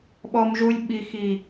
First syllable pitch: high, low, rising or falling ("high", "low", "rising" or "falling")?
high